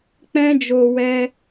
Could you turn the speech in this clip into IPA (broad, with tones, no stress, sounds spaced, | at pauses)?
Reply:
k͡p ɛ̃˧ d͡ʒ o˨ w ɛ˧